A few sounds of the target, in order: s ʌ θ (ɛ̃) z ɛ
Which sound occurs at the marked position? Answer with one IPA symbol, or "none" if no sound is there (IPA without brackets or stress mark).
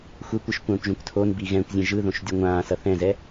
ɛ̃